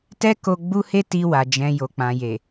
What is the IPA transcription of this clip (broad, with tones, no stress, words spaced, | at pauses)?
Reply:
tɛ˦ko˧ ɡ͡bu˦he˦ti˧wa˨ d͡ʒɛ̃˨ jo˨k͡pã˨ je˨